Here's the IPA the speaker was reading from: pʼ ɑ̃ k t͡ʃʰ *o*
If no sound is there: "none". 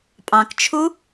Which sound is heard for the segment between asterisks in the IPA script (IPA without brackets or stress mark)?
u